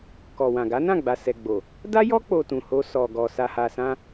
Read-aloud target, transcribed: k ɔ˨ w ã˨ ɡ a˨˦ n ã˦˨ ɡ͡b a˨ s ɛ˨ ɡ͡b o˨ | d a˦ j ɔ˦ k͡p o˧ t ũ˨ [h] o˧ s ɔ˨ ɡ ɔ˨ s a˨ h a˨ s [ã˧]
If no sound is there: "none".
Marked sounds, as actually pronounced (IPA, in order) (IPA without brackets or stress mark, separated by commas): h, ã˧